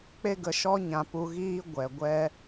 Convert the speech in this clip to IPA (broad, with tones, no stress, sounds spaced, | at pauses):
k͡p e˦ ɡ ə˧ ʃ ɔ˦ ɲ ã˧ p u˧ ɣ iː˦ ɡʷ ɛ˨ ɡʷ ɛ˦